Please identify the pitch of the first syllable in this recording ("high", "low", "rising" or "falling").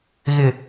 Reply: low